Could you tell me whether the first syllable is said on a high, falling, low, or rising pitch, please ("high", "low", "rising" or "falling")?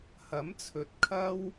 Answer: rising